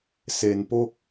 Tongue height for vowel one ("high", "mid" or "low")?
mid